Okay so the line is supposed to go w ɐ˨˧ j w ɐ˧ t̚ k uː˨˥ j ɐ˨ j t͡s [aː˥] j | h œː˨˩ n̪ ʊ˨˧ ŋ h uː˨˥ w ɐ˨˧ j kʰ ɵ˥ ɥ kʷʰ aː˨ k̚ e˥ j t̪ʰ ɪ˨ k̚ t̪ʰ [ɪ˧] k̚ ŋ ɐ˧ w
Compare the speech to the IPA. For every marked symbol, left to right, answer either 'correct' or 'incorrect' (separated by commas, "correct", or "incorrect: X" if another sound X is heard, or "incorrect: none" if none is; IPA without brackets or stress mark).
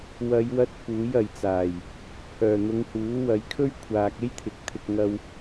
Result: incorrect: aː˨˩, correct